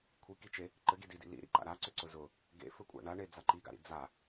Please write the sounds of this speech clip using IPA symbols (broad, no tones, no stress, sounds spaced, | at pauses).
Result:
kʷʰ i k i t͡ʃ e | ǃ ɘ ɡ i d i d ḭ l ḭ ɾ ḭ ǃ a̰ ɾ a ǀ ʏ ǀ ʊ z ʊ | ɡ ḛ f ɘ kʷʼ a̰ ɳ a ɳ e d͡z a ǃ i ɡ a̰ ɾ ḭ d͡z a